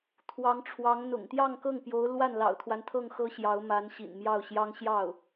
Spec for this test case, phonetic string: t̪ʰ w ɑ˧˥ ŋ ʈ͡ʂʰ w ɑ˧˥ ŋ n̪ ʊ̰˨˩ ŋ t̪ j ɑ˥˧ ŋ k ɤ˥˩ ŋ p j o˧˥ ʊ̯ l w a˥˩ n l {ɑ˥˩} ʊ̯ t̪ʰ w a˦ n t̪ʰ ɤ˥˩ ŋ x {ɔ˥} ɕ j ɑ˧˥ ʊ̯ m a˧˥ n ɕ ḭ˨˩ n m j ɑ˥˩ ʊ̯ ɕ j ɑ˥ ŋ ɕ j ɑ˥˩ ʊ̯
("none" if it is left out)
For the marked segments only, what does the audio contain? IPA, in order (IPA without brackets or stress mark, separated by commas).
ɑ̰˨˩, ɤ˥